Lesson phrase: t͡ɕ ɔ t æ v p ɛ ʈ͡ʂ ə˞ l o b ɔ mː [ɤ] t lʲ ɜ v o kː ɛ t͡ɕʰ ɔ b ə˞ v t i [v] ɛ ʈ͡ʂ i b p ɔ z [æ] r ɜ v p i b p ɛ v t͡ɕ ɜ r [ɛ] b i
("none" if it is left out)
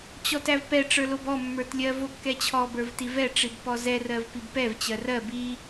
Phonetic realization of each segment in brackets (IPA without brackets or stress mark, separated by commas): ə˞, v, ɛ, ɜ